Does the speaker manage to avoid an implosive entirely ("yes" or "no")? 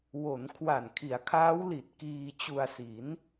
yes